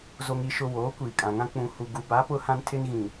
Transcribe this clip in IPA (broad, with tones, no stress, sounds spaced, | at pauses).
z o˨ ŋ i˨ ʃ ʊ˨ w oː˨˦ kʷ iː˨ kʼ ã˨ ŋ ã˦ k͡p ũ˨ h u˨ ɡ u˨ b a˨˦ p ʊ˦ h ã˦ n tʰ ɪ˦ n ɣ ĩ˨